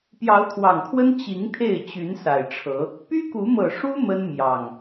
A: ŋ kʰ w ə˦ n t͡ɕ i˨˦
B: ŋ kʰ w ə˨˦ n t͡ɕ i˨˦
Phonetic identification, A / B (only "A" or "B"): A